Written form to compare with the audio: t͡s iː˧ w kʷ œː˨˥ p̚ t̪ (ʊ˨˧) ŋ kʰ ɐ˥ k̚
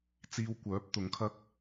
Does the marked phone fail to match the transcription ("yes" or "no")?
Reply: no